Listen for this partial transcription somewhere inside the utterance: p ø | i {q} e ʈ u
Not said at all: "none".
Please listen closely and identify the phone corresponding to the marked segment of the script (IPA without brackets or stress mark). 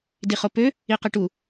q